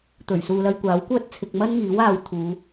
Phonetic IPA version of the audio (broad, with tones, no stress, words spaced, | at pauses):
t̪ɵ˨˩ɥ suː˨lɐ˧jkʷaː˨˥wkʷœː˥t̚ t͡sʰɪ˨k̚ mɐ˥nŋiː˨˥w aː˧wt̪ʰuː˨˧